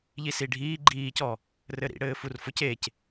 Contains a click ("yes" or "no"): yes